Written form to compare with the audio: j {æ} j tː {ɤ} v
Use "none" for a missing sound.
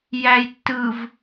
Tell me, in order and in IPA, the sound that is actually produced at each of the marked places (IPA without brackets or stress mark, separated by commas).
æ, ɯ